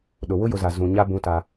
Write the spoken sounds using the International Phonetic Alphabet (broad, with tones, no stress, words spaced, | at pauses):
ɗʊ˨ wʊ˦jʊ˨za˨ zũ˨ ɲa˦ bũ˦ta˦